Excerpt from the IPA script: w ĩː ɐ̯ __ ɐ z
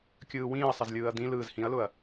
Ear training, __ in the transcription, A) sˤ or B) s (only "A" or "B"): A